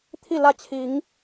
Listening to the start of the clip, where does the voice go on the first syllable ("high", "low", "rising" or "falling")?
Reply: falling